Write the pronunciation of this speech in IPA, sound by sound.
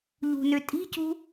ʎ ṳ n ø tʼ i̤ c ṳ

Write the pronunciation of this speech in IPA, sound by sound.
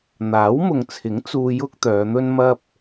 n̪ aː˨˥ w m ʊ˨ ŋ t͡sʰ ɪ˨˥ ŋ t͡s uː˧ j ʊ˥ k̚ t̪ œː˨˧ n̪ ɵ˥ n m ɐ˥ p̚

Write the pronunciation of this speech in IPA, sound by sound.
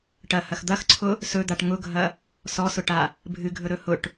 ʈ ɐ h ɐ x d̪ ɐ x ǀʰ ʊ | s ɵ d̪ a ʈ ŋ ʊ ɡʱ ɐ | s ɔ s ʊ ʈ a | bʱ ɨ ɡʱ ɵ ɾ ɵ h ʊ ʈ

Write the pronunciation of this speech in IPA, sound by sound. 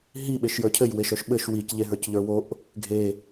ɦ i ɓ e ʃ j ə˞ cʰ ɘ j w e ʃ œ ʃ ɓ ɘ ʃ w i c ʎ e ɦ ə˞ c ʎ ə˞ w o ʔ | ɡʱ e

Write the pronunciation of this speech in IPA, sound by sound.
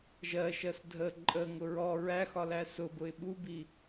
ʒ ɜ ʃ ɜ s dʱ ə ǃʼ ə ŋ ʊ ɹ ɔ ɹ æ x ɒ l æ s ʊ b ʊ ɪ̯ ɓ u b i

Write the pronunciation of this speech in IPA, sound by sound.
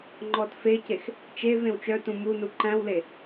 ŋ͡ǃ ɔ t f e c e x | t͡ʃ e v ẽ w t͡ʃ œ t ũ m u n u ǃ æ̃ w l e

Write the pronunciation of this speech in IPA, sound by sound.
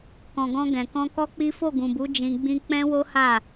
k ɔ̃˨ ɡ ɔ̃˧ ɡ ɛ̃˨ k ɔ̃˧ k ɔ˦ k͡p i˦ f o˦˨ ɡ ũ˨ b u˨˦ d͡ʒ ĩ˧ ɡ͡b ĩ˦ k͡p ɛ̃˦ w o˦ h a˦˨

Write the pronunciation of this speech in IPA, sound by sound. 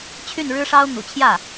t͡ɕʰ y˥˩ n ɻ ɻ̩˥ ʂ ɑ˥ ʊ̯ n̪ ṵ˨˩ t͡ɕʰ j ä˥˩

